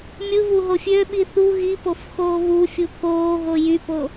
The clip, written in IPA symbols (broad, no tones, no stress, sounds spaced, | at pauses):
mʲ ɯ β u ɦ o fʲ ø ɓ i θ u ɣ i p o f x oː β u fʲ u k oː ɣ o j y p o